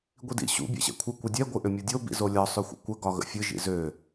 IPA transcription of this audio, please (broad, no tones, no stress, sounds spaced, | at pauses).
ɡʷ i d ḭ ɕ ṵ bʲ ɛ̰ ɕ ɛ̰ kʷʰ ɨ kʷ ɨ dʲ ɛ ɡʷ ɨ ʔ ʏ mʲ o dʲ o b ḭ z o lʲ ɒ sˤ ʏ xʷ ə̰ kʷ ə ɡ ɒ ɣ ə̰ fʲ ɨ ʒ ḭ z ø